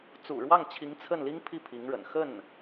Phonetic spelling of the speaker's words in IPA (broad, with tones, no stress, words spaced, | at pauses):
t͡sṵ˨˩ɻwɑ˥˩ŋt͡ɕʰi˧˥ŋ t͡sʰə˥˩nli˥ŋpʰi˥˩ pʰi˧˥ŋɻə̰˨˩n xə˥˩n